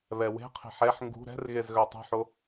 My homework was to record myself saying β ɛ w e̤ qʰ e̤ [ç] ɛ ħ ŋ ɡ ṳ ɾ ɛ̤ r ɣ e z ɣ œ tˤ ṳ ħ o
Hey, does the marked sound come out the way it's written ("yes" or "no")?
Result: no